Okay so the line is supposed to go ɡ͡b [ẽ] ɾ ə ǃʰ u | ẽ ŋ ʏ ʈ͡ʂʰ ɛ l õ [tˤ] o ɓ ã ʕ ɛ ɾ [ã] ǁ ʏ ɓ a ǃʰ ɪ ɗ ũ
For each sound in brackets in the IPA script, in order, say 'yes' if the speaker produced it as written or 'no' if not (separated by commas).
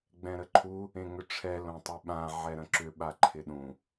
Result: no, yes, no